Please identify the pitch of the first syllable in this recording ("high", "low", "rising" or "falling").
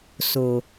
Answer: low